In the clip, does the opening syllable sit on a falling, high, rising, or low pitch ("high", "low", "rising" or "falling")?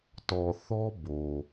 low